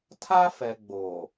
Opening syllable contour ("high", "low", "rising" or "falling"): high